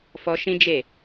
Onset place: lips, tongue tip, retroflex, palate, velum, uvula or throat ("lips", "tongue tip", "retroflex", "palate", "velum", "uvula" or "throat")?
lips